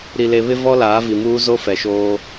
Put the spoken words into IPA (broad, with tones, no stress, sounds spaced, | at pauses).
ɾ i˨ l e˨ β ɪ˦ v ɔ˦ l aː˨˦ v i˨ m uː˦ z o˦ f ɛ˨ ʃ oː˦